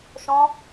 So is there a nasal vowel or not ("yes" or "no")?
yes